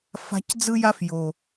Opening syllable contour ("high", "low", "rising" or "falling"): high